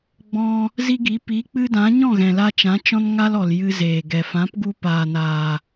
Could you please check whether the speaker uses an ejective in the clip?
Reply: no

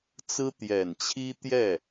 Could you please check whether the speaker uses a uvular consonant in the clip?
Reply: no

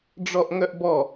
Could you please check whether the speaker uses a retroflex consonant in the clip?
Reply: yes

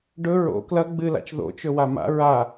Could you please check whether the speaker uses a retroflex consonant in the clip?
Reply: yes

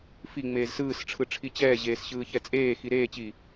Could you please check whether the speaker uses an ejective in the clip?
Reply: yes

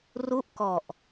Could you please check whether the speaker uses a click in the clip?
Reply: no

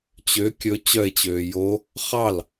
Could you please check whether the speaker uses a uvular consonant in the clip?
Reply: yes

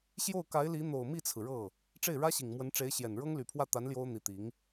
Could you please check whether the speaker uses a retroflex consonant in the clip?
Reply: yes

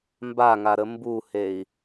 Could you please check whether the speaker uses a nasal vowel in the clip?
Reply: no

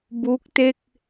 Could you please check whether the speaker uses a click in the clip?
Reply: no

